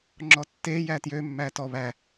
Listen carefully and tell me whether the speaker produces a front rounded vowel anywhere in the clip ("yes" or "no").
yes